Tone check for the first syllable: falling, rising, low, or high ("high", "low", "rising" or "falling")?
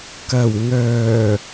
low